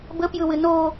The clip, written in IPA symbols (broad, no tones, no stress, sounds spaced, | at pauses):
b ə p j ɯ w ɨ n o